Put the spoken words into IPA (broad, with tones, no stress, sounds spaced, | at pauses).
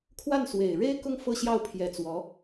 kʰ w a˥˩ n s w e˨˩ ɪ̯ ɻ e˥ ɪ̯ k ʊ˥˧ ŋ f ɤ˥˧ ɕ j ɑ˥˩ ʊ̯ pʰ j ɛ˧˥ t͡s w ɔ˧˥